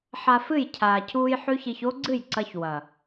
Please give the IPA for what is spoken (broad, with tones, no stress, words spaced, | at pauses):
ħa˧fɨ˦˨j cʰaː˨cʰuː˧j ħʉ˦çi˧ç o˦ɡ͡ǀɨ˦˨jǀɐ˧ç wɐ˨